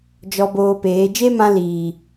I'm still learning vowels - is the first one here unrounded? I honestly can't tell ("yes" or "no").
no